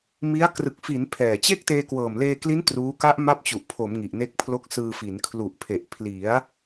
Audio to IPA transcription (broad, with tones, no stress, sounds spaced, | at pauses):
m i˦˥ a̯ k r ɯ˨˩ k̚ f i˩˦ n pʰ ɛː˨˩ t͡ɕ e˥˩ k̚ t eː˧ k w ɤː˨˩ m l eː˧ k l i˦˥ n t r uː˦˥ k a˦˥ ʔ m a˦˥ p̚ t͡ɕ u˨˩ ʔ pʰ o˩˦ m ŋ i˨˩ ʔ n e˦˥ k̚ pʰ l o˦˥ k̚ s ɯː˧ f i˩˦ n kʰ l u˨˩ ʔ pʰ e˨˩ ʔ pʰ l i˩˦ a̯